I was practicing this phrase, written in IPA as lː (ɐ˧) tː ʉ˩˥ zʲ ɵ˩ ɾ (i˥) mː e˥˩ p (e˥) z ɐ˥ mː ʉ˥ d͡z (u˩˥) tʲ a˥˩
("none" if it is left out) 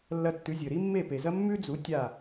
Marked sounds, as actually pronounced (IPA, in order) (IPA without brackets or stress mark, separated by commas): ɐ˧, i˥, e˩, u˩˥